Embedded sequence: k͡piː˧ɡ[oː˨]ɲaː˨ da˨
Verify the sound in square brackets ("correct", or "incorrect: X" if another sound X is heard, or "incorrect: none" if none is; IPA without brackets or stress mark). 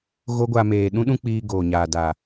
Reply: correct